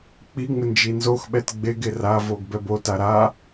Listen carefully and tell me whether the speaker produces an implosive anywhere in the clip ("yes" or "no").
yes